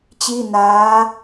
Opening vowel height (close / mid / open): close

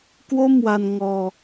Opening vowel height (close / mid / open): mid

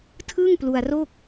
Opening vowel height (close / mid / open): close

